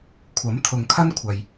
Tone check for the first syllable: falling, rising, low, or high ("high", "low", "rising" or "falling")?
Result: rising